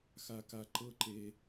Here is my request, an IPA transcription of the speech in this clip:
x a˧ k a˧ ǃ ɤ˦ ǃ e˦

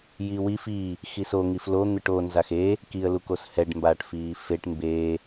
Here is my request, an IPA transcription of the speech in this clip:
j i w i f i | x i s o ŋ i f l o n̪ ɯ ʈ o n z a x e | k i ə̯ l u k o s h ɛ ɖ m b aː ʈ f iː f e ʈ m b eː

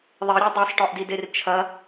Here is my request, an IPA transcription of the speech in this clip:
ðˤ i ɾʲ ɛ dˤ e sˤ ʈ ɔ ʔ d i d e r t͡ʃʰ ɐ

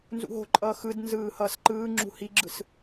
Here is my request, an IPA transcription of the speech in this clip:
n z ṵ ɦ o̤ ǃʼ ʌː x ɯ d n z ɯː h ʌː s ǃ ɯː ŋ͡ǁ ṳ h i ɡ͡ǁ ɯ s

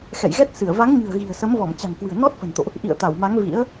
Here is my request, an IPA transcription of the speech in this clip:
x ɛ̰˧˨ j ɣ ɛ˦˥ t̚ s ɨ˧˩ ə̯ v a˨˦ ŋ ɲ ɨ̤˨˩ ə̯ ɣ i̤˨˩ ə̯ s ə˨˦ m v ɔ˧˩ m t͡ɕ a̤˨˩ ŋ k w ɨ̤˨˩ ə̯ n ɔ˦˥ t̚ f ə̤˨˩ n t̪ o̰˧˨ ʔ | ʔ ḭ˧˨ ə̯ t̪ a˧˩ w m a˨˦ ŋ v ḭ˧˥ ə̯

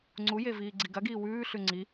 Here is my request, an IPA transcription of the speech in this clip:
ŋ͡ǀ u j e v iː ɡ͡ǀ i ɡ ɐ ɡ iː w ʉː ɬ ʉ ŋ͡ǀ i

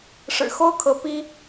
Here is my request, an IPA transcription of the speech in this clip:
ʂ ɻ̩˨˩ x o˥˩ ʊ̯ kʰ ɤ˧˥ p i˥

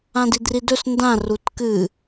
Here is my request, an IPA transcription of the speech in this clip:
ã d i d r i d ɵ s n d ã r u t k ɨ

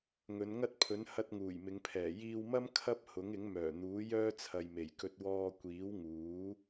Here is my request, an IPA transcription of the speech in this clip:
ŋ ɵ˨˧ n ŋ ɐ˥ t̚ pʰ ɵ˨˥ n h ɐ˧ t̚ ŋ uː˨˩ j m ɪ˨˧ ŋ pʰ ɛː˨˩ j iː˧ w m ɐ˥ m kʰ ɐ˥ p̚ h ʊ˨˥ ŋ ɪ˨˥ ŋ m œː˨˩ n̪ uː˨˥ j œː˥ t͡sʰ ɐ˨ j m e˨˩ j k ɵ˧ t̚ w ɔː˧ kʷ iː˨˥ w ŋ uː˨˥

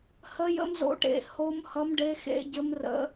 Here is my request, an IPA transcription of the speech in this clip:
h ə˦˥ j ə̰˦˥ m z o̰˦˥ ʈ ḛ˦˨ h o˦˥ m h ʌ˦˥ m ɖ e˦˥ x ḛ˦˥ ɟ ɘ˦˥ m r ə̰˦˥

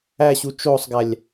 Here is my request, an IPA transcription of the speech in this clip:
æ ɕ u t͡ʃ o sˤ ɡ æ lʲ

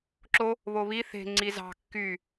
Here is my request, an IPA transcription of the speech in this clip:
ǁ o | β o β i θ e̤ ŋ͡ǀ i z ɑ̤ kː y

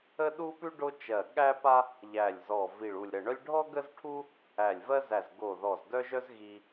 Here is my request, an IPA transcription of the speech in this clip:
ə˥ ɗ u˥ p ʉ˥ ɖ o˥ t͡ʃ ɜ˧˩ ɠ æ˥ p a˥ | ʎ æ˧˩ lʲ z ɔ˧˩ v i˧˩ ɭ u˧˩ lʲ ɾ ə˧˩ ɳ œ˥ lʲ ɖʱ ɔ˥ ɡ ə˥ z ʈʰ u˥ | æ˧˩ lʲ v ɜ˥ z æ˧˩ z ɡ o˧˩ ð ɔ˧˩ z d œ˥ ʒ œ˥ z ɣ i˥

